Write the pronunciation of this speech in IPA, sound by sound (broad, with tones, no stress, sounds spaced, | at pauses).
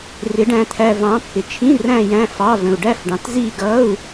r ɪ˨˦ ɖ æ̃˨ t̪ʰ æ˨ v ɑ̃˨˦ pː ɪ˨ t͡ʃʰ ĩ˧˥˧ r æ̃˥˧ j æ̃˧˥˧ f ɑ˧˥˧ v ə̃˨ u̯ ɖ æ˥˧ f ɖ ɑ̃˨ t z i˥˧ ɡ ʌ˧˥˧ u̯